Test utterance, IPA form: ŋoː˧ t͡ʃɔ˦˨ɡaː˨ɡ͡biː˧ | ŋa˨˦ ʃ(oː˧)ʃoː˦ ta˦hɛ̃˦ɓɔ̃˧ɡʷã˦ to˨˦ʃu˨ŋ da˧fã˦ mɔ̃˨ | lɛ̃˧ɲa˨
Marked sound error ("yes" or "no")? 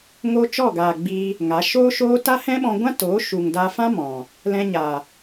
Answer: yes